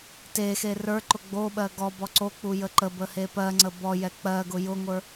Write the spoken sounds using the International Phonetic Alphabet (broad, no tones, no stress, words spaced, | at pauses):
texe rə˞ǃʊ ɡ͡boɓɜ ɡɔbɔ ǀok͡pu jəǃəbə hepɜŋ͡ǀə bɔjɛ k͡pɜɡʊ jʊŋʷə˞